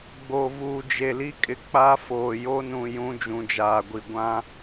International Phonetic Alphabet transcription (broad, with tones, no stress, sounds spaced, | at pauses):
ɡ͡b o˨ v uː˨ d͡ʒ e˨ l i˦ kʼ ɪ˨ k͡p a˦ f oː˨ j o˦ n ũ˨ j ũ˨˦ d͡ʒ ũ˨ d͡ʒ aː˨ ɡʷ i˨ ɡʷ ã˦